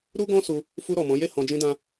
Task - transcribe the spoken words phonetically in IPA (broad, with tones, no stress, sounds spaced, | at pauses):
ɾ u˦ ɡ ɔ̃˦ s u˧ | f u˧ ɾ ɔ˨ m ɔ̃˨˦ j e˦˨ h ɔ̃˧ d͡ʒ ĩ˦ d ã˦